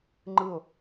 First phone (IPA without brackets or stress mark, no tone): ŋ͡ǃ